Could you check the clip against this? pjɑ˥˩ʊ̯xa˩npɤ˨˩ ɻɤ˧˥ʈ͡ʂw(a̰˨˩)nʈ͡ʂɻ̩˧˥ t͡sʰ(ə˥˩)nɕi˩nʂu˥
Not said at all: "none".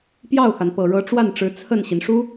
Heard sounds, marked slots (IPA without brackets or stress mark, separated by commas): a˥˩, ə˥˩